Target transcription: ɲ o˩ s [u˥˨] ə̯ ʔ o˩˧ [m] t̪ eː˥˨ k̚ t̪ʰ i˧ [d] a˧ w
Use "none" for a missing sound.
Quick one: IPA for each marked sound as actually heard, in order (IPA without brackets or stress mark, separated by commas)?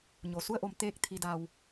u˥˨, m, d